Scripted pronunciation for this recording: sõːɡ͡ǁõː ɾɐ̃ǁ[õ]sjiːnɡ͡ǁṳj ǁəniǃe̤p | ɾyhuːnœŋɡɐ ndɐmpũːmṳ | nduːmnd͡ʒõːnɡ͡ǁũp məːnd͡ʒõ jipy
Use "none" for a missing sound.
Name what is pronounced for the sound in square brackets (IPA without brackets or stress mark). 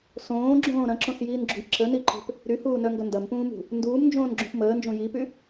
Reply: õ